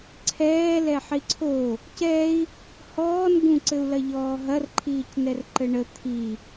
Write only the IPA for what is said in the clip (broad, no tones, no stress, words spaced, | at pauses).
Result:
ǀʰɛː lɛħiǀʰo | cɛi̯ | hɔːn ɡũǀɘu̯lɐʎɔː ɦɐrǃʰiːc nɛrǃɘɳə t̪ʰi